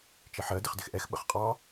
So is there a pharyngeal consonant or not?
yes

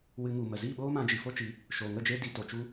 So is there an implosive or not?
yes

